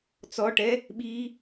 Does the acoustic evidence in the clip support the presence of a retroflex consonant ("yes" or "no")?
yes